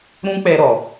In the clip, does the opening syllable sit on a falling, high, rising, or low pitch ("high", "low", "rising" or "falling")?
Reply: high